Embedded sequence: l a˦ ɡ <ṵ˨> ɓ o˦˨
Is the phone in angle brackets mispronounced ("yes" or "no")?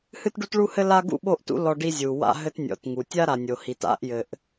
yes